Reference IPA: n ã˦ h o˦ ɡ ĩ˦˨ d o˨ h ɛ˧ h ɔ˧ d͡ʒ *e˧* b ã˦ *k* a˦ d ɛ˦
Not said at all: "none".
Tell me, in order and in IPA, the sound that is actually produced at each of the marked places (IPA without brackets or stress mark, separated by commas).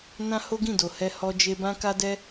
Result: e˧, k